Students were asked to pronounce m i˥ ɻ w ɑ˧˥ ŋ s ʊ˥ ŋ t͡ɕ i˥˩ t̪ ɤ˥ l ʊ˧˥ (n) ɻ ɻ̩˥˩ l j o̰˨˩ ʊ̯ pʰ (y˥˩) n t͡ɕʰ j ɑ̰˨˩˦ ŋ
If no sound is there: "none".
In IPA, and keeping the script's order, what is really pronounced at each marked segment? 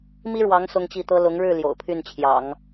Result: ŋ, y˥˩

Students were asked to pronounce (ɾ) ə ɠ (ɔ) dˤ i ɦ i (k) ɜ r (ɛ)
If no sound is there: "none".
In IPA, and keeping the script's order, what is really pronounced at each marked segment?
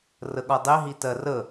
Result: r, ɔ, t, ə

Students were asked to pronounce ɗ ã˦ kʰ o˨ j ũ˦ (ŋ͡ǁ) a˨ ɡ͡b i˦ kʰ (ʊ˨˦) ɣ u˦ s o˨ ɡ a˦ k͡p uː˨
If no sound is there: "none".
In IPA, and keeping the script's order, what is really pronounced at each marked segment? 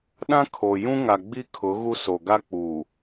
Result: ŋ, ʊ˨˦

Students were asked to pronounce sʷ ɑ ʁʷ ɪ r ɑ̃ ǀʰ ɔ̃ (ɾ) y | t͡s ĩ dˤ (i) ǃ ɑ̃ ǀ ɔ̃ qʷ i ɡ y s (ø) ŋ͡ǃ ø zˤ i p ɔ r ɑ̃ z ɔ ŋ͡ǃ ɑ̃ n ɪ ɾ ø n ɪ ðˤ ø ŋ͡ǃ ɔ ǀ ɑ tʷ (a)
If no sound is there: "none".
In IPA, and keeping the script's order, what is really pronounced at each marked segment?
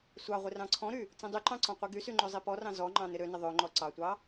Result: ɾ, y, y, ɑ

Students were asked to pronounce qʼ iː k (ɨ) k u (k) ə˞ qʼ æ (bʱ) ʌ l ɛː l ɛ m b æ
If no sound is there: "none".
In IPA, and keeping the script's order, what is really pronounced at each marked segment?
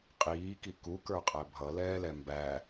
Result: i, k, bʱ

